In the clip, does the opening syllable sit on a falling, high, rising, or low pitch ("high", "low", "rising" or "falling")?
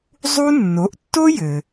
high